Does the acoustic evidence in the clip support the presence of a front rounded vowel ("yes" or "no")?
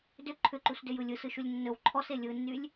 yes